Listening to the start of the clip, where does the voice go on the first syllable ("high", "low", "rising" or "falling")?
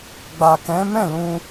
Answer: low